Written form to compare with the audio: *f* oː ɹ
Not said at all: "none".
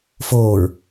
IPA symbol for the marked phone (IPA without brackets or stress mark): f